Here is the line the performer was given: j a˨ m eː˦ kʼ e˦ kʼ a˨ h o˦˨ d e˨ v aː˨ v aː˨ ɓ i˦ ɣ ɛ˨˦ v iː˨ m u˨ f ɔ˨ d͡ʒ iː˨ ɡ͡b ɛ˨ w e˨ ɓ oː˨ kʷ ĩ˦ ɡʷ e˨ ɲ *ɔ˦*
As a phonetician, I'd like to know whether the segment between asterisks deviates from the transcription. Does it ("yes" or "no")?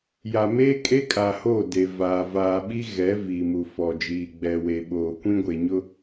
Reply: yes